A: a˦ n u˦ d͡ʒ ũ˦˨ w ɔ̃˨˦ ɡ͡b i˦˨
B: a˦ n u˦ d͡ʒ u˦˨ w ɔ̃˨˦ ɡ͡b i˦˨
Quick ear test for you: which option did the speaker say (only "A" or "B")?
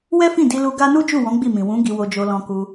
B